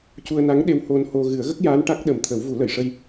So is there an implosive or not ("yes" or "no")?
yes